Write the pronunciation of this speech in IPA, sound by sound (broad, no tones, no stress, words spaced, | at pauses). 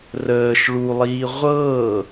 rəːʃ ɭulˠiː ʁʷɤː